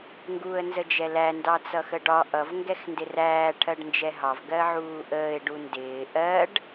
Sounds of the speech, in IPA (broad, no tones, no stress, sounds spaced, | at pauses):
ŋ ɡ uː ə̯ n z ə d͡ʒ ɛ l æ n d ɑ t͡s ʌ x ə ɖ ɒ ʔ ʌ v ŋ ɡ ɛ x n d ɪ r æː ʈʰ ɜ ɖ n d͡ʒ ɛ ɦ ɑ v ɡ ɜ ʕ uː ʔ əː ɪ̯ ɖ u n d ɪː ʔ ɜ ɖ